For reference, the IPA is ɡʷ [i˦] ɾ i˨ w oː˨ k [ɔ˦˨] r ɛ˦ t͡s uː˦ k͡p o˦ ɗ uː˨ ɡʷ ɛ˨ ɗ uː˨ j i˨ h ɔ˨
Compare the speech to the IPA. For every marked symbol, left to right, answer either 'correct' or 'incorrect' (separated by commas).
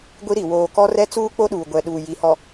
correct, incorrect